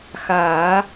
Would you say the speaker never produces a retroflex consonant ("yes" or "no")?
yes